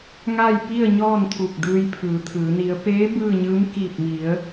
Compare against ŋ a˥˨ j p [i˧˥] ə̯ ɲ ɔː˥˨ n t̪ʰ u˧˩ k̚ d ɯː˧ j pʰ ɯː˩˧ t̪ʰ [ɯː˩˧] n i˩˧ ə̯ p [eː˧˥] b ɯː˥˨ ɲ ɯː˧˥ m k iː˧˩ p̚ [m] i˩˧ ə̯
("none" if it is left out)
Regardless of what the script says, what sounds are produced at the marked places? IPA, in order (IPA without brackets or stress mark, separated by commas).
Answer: i˥˨, ɯː˩˧, eː˧˥, m